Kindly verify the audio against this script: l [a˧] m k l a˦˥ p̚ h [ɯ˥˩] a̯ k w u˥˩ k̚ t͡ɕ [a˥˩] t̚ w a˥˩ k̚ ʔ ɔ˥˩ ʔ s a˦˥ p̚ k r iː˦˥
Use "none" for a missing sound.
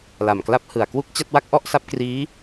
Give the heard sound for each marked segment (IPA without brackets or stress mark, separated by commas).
a˨˩, ɯ˨˩, a˥˩